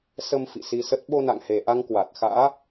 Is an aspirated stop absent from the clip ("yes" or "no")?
yes